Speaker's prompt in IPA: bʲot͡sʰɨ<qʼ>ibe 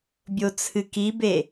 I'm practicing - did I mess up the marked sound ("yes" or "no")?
yes